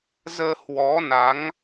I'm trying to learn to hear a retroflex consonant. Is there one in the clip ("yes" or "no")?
no